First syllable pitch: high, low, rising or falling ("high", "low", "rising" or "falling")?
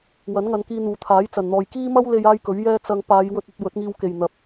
rising